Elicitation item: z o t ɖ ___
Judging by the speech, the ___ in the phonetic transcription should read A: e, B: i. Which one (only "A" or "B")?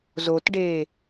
A